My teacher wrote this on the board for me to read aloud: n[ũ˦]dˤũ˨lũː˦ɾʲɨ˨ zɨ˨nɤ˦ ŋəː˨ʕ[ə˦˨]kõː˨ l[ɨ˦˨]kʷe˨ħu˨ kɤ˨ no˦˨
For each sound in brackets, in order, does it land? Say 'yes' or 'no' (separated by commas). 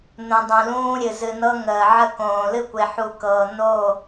no, yes, yes